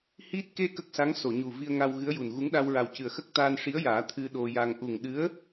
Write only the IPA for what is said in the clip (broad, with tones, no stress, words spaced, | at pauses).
hi˦˥t̚ ke˧ kə˦˥k̚sa˧˥ŋso˨˩˨ɲu˨˩ vi˧ə̯ŋa˧w ɣɨ˧˥ə̯ju˨˩n ɣu˧˥ŋ ɗa˧wɹa˨˩wcɨ˨˩ə̯xə˦˥k̚ t̪aː˧nʂi˧˥ə̯jaː˨˩˦ t̪ʰɨ˧ ɗo˧ja˧ŋ ʔu˨˩ŋɗɨ˧˥ə̯